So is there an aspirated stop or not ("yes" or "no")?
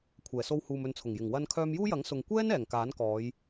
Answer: yes